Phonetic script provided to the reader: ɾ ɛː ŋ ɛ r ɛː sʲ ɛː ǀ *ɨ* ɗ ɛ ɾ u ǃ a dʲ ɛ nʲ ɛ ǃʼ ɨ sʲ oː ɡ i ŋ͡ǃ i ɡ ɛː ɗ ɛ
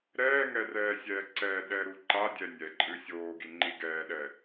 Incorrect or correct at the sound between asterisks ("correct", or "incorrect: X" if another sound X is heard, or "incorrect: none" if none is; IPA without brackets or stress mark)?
incorrect: ɛ